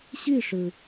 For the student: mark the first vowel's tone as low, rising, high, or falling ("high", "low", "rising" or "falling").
falling